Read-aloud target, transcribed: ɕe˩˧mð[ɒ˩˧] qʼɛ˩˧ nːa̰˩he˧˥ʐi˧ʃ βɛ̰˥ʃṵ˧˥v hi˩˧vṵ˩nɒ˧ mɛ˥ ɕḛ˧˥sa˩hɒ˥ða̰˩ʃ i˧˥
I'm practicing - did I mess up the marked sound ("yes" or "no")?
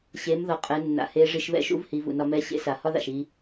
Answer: yes